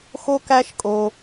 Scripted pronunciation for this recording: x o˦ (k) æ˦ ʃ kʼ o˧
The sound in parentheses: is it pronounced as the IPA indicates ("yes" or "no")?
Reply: yes